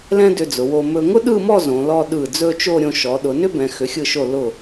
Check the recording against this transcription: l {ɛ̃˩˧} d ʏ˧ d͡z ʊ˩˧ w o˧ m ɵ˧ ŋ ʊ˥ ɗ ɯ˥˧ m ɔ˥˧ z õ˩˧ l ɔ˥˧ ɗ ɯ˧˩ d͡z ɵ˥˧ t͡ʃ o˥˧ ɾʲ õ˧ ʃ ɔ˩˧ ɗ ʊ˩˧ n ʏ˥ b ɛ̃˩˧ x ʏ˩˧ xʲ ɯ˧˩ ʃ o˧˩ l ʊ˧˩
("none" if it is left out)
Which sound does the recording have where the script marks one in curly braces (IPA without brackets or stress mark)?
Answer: ɛ̃˥